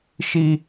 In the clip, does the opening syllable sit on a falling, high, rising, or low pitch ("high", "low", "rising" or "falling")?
high